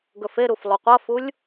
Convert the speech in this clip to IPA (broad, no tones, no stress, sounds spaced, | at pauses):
ɡ ɵ f e ɾ u f lˠ u qʷ ɐ f u lʲ